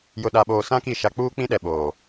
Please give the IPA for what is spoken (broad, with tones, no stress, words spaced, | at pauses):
jʊ˨ɗa˨ɓoː˨ sã˦ki˦˨ ʃa˦ k͡puː˦k͡pĩ˦ɗɛ˨ ɓoː˨